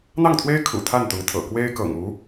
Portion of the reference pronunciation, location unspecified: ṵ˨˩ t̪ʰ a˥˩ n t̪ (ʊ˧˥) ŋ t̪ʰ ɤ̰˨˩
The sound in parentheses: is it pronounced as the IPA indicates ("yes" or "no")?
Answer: yes